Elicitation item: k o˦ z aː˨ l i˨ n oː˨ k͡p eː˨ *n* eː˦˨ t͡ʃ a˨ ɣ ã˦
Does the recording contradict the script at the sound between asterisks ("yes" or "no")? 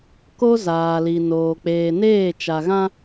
no